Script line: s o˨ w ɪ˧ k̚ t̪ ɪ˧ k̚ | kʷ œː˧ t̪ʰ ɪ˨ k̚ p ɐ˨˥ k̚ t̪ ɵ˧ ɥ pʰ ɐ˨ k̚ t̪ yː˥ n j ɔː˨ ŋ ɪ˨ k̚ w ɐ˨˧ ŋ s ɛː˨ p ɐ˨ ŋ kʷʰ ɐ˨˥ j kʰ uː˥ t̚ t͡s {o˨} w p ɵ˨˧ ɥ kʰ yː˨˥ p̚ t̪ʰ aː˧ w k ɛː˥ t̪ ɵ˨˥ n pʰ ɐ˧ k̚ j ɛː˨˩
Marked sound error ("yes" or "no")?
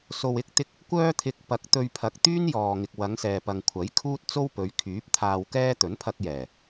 yes